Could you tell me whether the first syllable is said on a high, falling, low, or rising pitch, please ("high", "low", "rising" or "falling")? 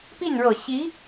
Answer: falling